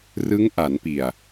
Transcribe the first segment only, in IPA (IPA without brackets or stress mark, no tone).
r